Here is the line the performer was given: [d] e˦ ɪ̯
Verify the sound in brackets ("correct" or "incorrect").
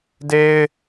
correct